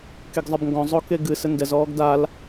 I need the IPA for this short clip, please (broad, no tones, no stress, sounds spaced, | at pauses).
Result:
k e ɡ zˤ ɘ b ŋ ɡ ɔ̃ zˤ o k e ɡ ɨ s ɘ n d ɛ z ɔː ɡ d a l